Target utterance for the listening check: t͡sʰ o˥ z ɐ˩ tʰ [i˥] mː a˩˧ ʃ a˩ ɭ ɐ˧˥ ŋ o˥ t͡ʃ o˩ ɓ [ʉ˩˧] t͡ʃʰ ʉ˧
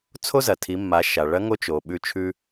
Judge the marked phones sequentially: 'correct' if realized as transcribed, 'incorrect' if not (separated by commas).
incorrect, incorrect